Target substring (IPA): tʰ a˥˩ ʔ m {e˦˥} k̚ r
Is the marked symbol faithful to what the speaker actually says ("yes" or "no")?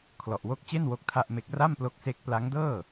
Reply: yes